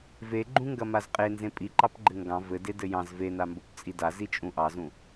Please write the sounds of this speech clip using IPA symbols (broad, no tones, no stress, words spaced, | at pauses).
veɡ͡ǃũŋɡɐ mazqʼenzẽ pʼiǃɑpɡ͡ǃɘ ŋɡɑ̃ vɘde dɘjɑ̃z venambop t͡sʼida zit͡ʃʼũʔɑzũ